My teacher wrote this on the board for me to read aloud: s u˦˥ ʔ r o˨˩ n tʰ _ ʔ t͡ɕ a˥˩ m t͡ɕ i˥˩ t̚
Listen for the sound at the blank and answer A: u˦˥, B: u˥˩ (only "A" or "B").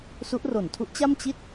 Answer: A